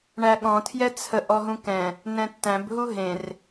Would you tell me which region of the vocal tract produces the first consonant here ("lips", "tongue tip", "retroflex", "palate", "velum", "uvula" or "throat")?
retroflex